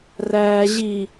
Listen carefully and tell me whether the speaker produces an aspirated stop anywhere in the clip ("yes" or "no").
no